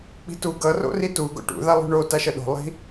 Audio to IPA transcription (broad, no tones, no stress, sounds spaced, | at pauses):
k͡p i̤ t u ɡ ʌ r o̰ r i t u ɡ o̰ ʈ ṵ ð a lˠ ṳ ɳ o t a ʃ ʌ ɗ o̤ lˠ i̤